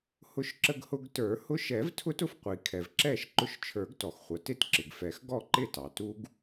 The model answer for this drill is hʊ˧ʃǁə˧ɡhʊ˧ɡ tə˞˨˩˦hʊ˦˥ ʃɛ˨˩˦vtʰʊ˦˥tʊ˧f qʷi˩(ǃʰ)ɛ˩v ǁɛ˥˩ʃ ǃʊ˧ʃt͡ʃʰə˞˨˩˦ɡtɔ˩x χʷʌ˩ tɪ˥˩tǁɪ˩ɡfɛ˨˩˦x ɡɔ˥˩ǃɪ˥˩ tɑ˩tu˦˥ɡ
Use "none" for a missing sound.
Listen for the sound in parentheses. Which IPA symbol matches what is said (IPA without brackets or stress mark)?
kʰ